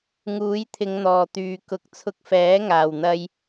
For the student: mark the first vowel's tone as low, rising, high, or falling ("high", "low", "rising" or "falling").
rising